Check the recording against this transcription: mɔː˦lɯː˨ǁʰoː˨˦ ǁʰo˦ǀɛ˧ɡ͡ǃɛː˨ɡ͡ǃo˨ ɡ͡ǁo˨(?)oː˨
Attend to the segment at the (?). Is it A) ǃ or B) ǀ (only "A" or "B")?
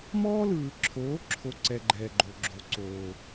B